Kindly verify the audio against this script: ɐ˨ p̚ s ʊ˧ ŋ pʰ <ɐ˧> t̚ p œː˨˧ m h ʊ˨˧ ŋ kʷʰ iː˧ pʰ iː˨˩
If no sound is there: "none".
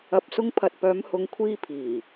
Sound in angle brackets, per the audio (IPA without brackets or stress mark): ɐ˨